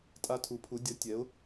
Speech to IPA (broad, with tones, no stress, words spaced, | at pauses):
tʼa˥ tʰu˩˥pʰu˩˥ dʲʌ˩˥ tʲɛ˩˥ʊ̯